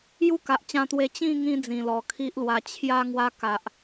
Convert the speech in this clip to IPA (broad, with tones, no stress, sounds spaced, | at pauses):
j u˥˧ k a˨ ʔ t͡ɕ ã˧ t̪ w e˧ t͡ɕ ĩ˥˧ ŋ ĩ˦ d͡z ĩ˨˩ l ɔ˨˩ kʰ i˦ ʔ l w a˧ t͡ɕʰ j a˥˧ ŋ w a˦ k a˨ ʔ